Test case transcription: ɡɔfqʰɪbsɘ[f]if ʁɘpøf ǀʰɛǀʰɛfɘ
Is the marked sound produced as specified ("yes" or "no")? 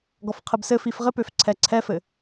yes